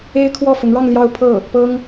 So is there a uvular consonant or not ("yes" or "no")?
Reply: no